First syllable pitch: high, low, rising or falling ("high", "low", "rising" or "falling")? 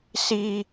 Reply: high